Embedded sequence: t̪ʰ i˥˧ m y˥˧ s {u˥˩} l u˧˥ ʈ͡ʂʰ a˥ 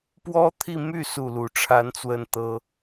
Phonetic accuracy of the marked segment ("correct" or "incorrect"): correct